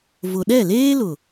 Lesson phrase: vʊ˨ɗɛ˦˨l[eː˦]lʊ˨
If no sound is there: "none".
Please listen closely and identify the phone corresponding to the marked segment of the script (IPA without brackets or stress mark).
eː˦